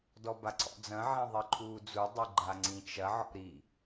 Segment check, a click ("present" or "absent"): present